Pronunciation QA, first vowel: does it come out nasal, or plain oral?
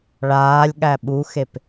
oral